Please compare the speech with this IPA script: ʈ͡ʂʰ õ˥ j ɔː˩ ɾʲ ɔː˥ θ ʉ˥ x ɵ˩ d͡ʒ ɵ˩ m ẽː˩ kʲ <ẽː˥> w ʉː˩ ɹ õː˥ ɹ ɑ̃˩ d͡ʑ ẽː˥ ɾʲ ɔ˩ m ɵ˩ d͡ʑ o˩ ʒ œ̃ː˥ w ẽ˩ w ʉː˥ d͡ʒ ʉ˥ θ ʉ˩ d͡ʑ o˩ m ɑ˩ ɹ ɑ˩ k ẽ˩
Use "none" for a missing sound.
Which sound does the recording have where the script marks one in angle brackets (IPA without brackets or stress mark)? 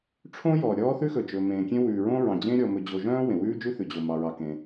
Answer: ẽ˥